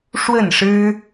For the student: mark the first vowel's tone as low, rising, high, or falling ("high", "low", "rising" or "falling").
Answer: falling